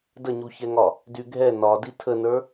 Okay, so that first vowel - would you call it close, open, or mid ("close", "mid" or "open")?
mid